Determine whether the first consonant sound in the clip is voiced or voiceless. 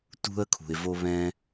voiceless